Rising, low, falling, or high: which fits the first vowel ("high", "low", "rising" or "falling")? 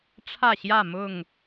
falling